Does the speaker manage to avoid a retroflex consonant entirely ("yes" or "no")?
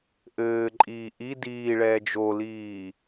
no